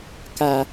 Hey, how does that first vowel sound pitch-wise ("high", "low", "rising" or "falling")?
low